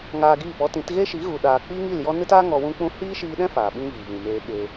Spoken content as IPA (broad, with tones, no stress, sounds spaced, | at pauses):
ŋ aː˧ ɡ iː˦˨ p ɔ˦ t ĩ˨˦ t ɣ e˦ ʃ i˨˦ ɣ u˨ ɗ aː˨ k͡p iː˦ ŋ i˦˨ l j ɔ˦ n ɨ˦ t aː˦ ŋ ɔ˧ w ũ˦ k͡p ũ˦ h iː˦ ʃ iː˧ ɗ ɛ̃˦ f aː˨ ɓ ĩ˦ v iː˨ v ĩ˨ m eː˧ ɓ e˧